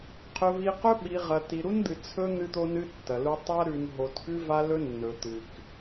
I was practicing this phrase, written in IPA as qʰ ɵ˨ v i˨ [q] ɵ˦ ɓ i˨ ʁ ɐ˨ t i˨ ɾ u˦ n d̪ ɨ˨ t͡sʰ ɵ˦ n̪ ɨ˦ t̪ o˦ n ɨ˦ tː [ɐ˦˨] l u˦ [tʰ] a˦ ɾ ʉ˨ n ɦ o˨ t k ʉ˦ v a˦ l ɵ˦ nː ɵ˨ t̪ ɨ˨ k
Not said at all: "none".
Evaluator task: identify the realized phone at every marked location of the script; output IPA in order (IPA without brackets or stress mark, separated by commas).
q, ɐ˨, tˤ